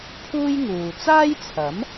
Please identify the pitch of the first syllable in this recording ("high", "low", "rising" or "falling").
high